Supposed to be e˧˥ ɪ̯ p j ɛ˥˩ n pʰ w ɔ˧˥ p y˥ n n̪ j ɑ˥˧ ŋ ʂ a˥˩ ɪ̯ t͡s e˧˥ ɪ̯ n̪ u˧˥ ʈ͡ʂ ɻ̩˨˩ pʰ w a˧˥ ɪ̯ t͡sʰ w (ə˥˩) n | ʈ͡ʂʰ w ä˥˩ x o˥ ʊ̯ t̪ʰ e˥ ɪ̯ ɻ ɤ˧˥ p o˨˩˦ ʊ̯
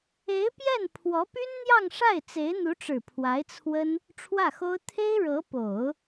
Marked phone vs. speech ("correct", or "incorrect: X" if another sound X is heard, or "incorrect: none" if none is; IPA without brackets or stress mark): incorrect: ə˥